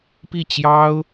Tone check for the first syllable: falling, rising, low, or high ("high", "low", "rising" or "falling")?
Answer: falling